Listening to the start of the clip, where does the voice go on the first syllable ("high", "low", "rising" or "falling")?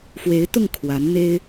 rising